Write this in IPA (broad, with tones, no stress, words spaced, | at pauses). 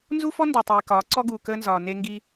nzu˦fɔ˦ ndɔ˨tˤiː˨ kɒː˨˦ǀɔ˦ɡuː˨ kəː˦nzɒː˨ ne˦ŋɡi˦